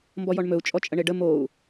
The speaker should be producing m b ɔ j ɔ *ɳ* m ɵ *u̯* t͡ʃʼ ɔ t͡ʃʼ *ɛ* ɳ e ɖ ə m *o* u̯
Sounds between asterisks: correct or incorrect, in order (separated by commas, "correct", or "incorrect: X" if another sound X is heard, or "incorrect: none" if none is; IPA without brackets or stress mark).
correct, correct, incorrect: ə, correct